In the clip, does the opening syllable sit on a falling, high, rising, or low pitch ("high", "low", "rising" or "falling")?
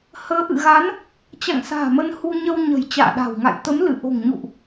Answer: rising